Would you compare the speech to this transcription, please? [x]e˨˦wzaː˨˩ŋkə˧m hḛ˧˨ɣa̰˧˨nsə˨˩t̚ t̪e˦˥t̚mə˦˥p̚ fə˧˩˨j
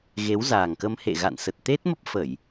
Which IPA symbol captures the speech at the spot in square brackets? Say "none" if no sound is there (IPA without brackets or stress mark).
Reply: ɣ